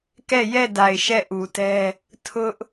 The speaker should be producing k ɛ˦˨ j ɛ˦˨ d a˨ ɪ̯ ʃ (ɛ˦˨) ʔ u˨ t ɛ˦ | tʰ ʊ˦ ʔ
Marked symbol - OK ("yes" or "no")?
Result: yes